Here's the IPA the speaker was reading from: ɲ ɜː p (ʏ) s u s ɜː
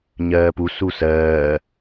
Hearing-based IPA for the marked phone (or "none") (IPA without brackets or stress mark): u